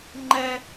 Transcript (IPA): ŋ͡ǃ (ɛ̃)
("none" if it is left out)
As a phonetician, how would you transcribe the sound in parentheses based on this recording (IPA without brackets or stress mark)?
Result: ɛ